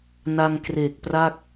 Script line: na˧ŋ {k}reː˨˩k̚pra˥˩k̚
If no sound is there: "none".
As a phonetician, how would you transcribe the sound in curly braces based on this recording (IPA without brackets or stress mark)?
k